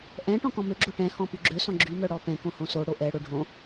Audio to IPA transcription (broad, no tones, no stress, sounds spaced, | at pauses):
ʔ ɛ̃ ʈ ɔ̃ k ɔ̃ m ø ɡ͡ǁ o ʈ ɛ̃ h ɔ̃ p y ɡ͡ǁ ø s ɔ̃ ɡ͡ǁ y m œ ɽ ɔ p ɛ̃ k õ h õ s o ɽ o ʔ ɛ ɽ o ɖʱ õ